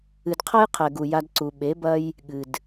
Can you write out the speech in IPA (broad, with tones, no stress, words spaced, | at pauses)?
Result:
ɨ˨dqʰɐ˦jqʰɛ˨ɡu˨ ja˧dǀu˨ ɓe˨˦bɐ˦j | ɠɨ˨d